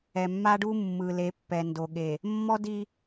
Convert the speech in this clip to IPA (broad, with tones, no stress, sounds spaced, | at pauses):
ɛ˨ mː a˦ ɖ u˦ mː ɯ˨ l e˨˦ pː ɛ˨ n d o˨ ɠ e˨ | mː ɔ˦ d i˦